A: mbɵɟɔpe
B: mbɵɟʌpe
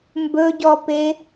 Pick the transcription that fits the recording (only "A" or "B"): A